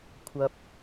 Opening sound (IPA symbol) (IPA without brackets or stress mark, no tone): kʷʰ